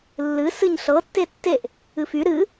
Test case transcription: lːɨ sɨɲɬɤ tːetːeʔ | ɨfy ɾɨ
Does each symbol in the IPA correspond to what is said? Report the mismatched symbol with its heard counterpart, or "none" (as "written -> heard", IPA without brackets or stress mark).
none